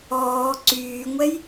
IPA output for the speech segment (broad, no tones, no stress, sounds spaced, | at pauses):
ɔː ǀ yː ŋʷ ɛ j